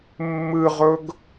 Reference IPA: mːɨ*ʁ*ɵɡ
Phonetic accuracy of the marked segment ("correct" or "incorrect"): correct